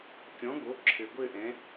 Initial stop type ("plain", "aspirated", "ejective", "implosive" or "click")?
plain